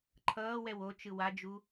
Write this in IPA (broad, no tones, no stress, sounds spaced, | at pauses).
ǃʰ ʌː w ɛ w o t͡ʃ ɯ w a d͡ʒ u